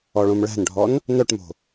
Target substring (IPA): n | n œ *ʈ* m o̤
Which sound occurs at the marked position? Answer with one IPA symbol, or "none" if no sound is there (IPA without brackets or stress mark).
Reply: ʈ